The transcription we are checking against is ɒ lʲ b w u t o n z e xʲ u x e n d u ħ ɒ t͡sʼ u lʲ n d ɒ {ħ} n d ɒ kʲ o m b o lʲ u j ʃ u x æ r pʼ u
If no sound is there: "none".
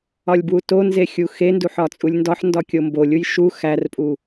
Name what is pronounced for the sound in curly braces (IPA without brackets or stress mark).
ħ